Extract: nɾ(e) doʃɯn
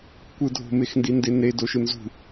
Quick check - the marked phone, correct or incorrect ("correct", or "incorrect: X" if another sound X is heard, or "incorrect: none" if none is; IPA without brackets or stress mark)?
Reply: correct